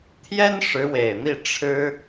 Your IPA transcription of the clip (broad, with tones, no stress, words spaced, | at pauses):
t̪ʰjɛ˥nʂɻ̩˧˥we˨˩ɪ̯n̪i˥˩ ʈ͡ʂʰɻ̩˥